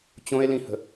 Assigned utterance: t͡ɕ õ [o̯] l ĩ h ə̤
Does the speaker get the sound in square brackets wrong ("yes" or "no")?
yes